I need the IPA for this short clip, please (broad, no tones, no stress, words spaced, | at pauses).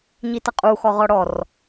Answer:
ɲitʌqʼu xɔʁɔɽɔr